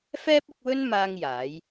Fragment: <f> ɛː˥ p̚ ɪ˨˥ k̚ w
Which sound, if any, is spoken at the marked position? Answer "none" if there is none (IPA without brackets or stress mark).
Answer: f